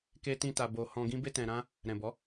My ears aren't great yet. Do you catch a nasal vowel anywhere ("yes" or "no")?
yes